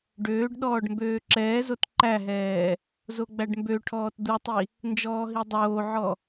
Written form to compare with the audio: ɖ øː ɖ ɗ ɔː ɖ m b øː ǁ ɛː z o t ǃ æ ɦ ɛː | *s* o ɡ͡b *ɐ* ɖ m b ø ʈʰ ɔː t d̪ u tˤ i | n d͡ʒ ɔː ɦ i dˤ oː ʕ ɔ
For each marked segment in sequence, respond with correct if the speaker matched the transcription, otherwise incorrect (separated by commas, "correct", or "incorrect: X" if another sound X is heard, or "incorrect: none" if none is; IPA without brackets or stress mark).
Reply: incorrect: z, incorrect: æ